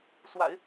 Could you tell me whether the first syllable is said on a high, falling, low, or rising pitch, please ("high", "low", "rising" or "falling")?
low